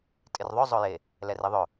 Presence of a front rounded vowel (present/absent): present